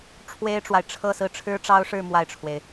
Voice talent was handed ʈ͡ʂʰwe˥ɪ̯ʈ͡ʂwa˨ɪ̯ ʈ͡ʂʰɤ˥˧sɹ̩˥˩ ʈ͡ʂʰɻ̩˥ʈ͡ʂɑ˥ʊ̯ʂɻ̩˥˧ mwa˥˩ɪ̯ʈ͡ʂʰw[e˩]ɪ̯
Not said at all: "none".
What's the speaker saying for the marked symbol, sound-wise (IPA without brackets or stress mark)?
e˩